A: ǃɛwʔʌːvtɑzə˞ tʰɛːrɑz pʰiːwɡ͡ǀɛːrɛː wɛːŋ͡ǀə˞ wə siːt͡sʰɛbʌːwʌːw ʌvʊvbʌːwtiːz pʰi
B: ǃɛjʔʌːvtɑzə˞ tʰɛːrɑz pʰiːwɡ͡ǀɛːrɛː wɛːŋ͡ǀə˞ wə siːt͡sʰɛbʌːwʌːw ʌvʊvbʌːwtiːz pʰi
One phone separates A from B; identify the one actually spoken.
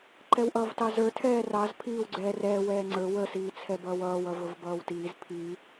A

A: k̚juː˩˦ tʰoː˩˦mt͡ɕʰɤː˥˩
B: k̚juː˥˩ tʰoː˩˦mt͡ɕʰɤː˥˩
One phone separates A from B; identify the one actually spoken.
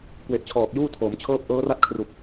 B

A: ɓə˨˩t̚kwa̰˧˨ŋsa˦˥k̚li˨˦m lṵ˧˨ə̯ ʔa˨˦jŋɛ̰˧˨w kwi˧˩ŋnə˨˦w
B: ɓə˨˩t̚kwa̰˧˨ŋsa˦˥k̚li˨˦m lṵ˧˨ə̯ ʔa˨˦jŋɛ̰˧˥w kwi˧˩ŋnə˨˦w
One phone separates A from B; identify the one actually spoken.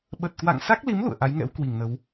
B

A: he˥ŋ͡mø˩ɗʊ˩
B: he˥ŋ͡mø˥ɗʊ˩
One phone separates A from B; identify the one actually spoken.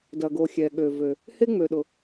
A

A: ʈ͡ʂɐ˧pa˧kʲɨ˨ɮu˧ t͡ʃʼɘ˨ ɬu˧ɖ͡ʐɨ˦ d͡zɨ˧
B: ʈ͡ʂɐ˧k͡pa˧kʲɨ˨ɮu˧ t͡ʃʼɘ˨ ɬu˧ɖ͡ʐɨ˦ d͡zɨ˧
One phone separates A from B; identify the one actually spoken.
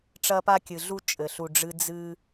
A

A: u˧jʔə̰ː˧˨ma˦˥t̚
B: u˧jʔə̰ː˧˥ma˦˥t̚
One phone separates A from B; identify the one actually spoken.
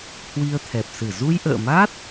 A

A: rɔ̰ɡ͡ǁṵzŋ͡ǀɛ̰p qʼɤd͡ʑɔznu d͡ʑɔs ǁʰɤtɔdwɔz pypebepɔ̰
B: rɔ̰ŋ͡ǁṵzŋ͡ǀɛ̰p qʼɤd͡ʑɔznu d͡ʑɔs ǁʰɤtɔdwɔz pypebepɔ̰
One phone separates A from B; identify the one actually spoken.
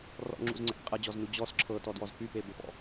B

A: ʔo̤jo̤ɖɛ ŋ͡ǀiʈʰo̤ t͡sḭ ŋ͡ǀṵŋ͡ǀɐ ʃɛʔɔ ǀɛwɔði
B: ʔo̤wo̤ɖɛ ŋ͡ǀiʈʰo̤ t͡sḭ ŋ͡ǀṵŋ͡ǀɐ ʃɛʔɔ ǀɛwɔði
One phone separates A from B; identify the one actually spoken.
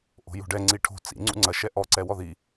A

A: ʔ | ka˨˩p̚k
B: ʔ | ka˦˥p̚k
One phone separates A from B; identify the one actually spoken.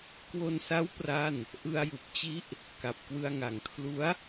A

